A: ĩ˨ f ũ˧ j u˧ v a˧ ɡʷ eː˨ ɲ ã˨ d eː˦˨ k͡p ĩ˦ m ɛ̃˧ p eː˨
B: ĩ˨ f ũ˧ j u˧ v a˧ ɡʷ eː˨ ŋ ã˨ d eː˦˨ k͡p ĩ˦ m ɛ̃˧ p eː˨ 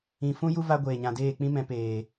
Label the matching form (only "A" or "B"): A